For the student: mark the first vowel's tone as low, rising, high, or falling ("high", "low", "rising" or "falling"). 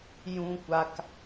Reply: high